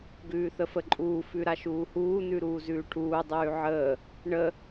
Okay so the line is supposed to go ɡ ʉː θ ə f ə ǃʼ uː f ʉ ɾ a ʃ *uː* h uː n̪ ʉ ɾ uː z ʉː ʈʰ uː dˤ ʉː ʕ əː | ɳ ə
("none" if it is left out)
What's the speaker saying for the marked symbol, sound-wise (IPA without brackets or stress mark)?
uː